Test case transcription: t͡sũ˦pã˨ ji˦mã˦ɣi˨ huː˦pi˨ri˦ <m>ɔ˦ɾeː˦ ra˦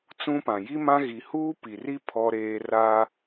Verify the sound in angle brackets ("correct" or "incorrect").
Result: incorrect